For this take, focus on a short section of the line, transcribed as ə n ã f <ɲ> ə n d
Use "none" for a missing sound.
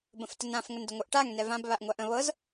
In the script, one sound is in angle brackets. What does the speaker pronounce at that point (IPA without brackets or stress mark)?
ŋ